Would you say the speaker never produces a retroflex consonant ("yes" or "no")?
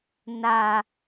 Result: yes